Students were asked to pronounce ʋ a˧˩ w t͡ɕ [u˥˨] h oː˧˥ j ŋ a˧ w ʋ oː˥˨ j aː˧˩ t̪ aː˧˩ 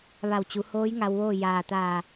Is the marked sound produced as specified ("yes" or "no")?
no